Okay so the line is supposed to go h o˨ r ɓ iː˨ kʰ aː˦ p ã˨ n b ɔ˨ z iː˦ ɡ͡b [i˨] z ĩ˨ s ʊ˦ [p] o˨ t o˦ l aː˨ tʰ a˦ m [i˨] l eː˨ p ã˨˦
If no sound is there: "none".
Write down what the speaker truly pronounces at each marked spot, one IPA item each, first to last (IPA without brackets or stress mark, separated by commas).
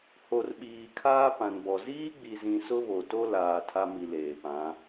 i˨, β, i˨